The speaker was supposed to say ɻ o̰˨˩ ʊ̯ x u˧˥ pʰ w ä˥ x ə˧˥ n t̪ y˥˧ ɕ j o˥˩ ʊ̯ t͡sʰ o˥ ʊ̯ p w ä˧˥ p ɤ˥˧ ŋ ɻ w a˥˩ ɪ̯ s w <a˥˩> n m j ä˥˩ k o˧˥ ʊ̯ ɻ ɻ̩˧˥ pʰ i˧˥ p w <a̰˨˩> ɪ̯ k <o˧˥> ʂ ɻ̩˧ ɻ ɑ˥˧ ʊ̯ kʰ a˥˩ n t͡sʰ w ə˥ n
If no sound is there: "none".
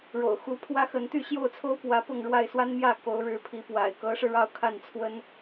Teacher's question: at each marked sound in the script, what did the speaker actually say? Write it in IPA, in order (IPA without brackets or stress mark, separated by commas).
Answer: a˥, a̰˨˩, ɤ˧˥